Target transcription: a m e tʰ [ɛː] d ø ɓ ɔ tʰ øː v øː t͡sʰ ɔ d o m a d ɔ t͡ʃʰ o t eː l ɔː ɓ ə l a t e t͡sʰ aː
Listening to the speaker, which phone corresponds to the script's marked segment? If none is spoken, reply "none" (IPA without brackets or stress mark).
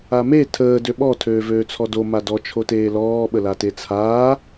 əː